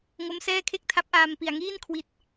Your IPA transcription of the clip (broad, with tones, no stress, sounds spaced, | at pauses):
ŋ o˦˥ m s ɛː˥˩ kʰ e˥˩ k̚ tʰ a˦˥ p̚ ʔ aː˧ m p i˨˩ a̯ ŋ iː˥˩ n kʰ w i˨˩ t̚